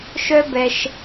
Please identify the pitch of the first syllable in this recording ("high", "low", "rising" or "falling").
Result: high